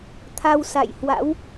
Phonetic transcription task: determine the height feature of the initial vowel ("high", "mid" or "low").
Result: low